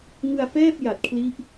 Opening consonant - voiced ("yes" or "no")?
yes